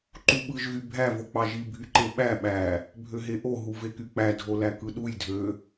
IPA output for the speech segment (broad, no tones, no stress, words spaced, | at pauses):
ǃuɓɯʒ ɣybʱæ vok͡pɑʒi bʱyǃeɓæ ɓæ | bʱøɦeʔo ɦuvekyk͡pæ dʱolækɯɗuj dʱø